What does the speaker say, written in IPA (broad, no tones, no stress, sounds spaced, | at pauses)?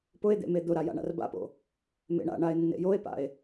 p ʊ e̯ d̪ ḛ m e d̪ ʊ ɾ a j a̰ ɳ a̰ r b a̰ p o̰ | m ḛ ɳ a̰ ɳ a e̯ nː ḛ j o e̯ p a̰ e̯